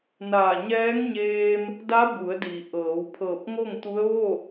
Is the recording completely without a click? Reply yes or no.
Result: yes